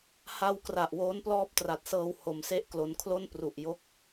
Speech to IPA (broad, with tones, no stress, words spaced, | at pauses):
ha˧wkra˨˩ʔ woː˦˥nplɔː˦˥p̚tra˨˩t̚sɤː˧w ho˧mse˥˩ʔklo˧n kʰlo˥˩n pru˨˩ʔ jo˥˩k̚